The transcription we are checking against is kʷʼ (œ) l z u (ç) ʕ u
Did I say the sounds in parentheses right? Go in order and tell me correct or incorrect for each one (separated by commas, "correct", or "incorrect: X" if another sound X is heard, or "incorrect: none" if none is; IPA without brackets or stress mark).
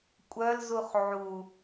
correct, incorrect: χ